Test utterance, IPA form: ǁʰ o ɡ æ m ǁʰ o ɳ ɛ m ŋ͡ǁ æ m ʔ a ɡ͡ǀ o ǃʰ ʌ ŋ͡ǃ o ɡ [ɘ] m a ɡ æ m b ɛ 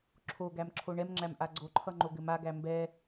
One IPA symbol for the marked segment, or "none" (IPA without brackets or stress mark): ɘ